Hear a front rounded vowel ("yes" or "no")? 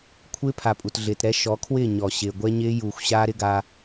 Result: no